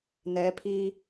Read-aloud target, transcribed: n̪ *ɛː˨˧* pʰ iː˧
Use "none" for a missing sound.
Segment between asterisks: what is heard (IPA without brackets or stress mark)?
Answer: ɛː˨˧